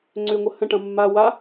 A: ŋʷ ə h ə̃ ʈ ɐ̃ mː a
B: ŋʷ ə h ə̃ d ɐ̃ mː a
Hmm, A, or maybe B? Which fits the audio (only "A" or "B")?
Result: A